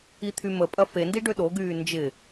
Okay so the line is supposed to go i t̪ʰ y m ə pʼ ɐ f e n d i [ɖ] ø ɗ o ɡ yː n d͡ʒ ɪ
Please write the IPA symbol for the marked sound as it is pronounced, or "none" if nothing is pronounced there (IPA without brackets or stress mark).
ɖ